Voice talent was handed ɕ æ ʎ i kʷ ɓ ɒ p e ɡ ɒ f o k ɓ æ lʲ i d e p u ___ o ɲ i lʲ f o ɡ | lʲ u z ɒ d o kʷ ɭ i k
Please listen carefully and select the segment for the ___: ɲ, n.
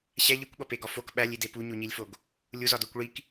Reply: ɲ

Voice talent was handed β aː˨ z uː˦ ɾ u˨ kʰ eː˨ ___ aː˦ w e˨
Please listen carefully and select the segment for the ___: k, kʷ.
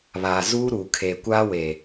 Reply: kʷ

